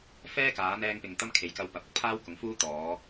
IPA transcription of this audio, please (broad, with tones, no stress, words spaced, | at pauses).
fɛː˥ kaː˨˧n̪ɛː˧ŋpɪ˨ŋ t̪ɐ˥mkʰe˨˧jkɐ˧w pɐ˨p̚ɐ˨˥k̚pʰaː˥w kʊ˨˧ŋfuː˥t̪ɔː˨˧